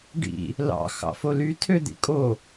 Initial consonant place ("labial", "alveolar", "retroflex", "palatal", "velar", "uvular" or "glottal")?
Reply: retroflex